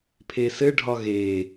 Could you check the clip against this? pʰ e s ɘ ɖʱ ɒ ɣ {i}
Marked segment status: incorrect: e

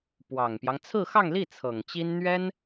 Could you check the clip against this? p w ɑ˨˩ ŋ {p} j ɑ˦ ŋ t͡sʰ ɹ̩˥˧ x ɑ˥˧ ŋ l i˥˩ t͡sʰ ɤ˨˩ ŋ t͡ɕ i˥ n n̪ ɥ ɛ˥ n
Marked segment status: correct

